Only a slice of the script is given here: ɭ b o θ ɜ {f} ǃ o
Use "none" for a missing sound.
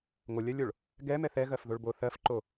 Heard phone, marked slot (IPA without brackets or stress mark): f